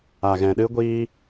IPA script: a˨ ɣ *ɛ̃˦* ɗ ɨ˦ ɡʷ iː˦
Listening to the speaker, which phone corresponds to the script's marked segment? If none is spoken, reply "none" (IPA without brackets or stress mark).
ɛ̃˨